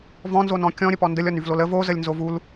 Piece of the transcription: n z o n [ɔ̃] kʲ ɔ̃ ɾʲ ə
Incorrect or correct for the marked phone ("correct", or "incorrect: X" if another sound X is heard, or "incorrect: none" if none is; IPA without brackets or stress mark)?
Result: correct